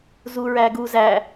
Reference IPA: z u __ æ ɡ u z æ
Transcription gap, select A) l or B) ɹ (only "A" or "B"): B